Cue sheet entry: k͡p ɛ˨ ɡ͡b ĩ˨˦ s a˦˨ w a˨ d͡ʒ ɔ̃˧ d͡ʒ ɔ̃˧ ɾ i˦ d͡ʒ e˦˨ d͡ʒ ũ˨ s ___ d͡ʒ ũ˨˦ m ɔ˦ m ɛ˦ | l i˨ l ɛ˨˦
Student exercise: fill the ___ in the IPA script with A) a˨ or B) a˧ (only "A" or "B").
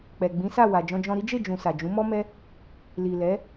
A